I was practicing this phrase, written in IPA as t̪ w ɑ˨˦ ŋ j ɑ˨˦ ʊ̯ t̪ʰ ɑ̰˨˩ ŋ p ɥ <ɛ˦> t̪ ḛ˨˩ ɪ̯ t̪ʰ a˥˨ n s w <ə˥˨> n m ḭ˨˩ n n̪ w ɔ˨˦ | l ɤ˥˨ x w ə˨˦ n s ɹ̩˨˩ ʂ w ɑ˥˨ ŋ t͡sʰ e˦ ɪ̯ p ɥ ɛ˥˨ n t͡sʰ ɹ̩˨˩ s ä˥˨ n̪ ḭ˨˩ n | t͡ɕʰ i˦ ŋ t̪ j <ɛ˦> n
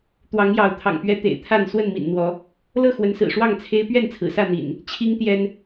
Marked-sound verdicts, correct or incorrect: correct, correct, correct

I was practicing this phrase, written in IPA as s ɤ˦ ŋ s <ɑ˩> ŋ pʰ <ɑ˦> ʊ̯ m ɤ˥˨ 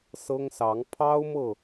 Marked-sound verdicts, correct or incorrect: incorrect: ɑ˨˦, correct

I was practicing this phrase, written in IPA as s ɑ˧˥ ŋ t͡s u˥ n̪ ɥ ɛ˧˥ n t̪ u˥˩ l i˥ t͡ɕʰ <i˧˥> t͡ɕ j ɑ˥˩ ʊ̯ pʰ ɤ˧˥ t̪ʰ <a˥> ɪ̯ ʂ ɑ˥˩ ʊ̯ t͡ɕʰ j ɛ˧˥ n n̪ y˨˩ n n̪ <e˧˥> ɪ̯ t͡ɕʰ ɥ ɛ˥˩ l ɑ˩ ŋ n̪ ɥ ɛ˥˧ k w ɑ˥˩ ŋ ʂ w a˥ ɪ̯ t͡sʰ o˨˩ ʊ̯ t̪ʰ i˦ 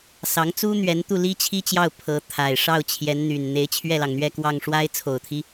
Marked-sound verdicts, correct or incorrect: incorrect: i˥, incorrect: a˨˩, correct

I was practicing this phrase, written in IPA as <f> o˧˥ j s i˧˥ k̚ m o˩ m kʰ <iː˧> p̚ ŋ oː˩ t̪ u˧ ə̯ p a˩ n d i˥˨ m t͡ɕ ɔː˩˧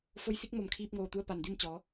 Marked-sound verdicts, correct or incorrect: correct, correct

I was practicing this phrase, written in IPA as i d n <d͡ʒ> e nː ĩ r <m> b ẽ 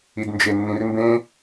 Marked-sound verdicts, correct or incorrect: correct, correct

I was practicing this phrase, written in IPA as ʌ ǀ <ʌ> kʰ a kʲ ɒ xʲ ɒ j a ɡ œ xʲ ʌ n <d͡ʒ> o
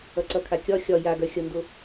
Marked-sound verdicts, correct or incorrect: correct, incorrect: d

